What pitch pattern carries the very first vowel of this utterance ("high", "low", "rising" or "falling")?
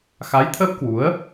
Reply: rising